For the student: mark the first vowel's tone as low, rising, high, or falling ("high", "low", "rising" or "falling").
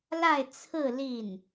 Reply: falling